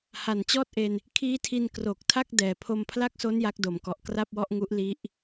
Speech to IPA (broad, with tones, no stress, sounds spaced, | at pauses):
h a˨˩ n t͡ɕ ɔː˥˩ t̚ ʔ e˧ n | kʰ iː˦˥ tʰ i˧ n k r o˨˩ k̚ tʰ a˥˩ k̚ d ɛː˨˩ pʰ o˧ m pʰ l a˥˩ k̚ s o˦˥ n j a˦˥ k̚ d o˩˦ m k ɔ˨˩ ʔ k r a˥˩ p̚ w ɔ˥˩ ʔ ŋ u˦˥ ʔ l i˦˥ ʔ